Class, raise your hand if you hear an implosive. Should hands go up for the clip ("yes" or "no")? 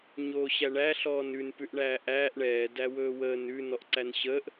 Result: no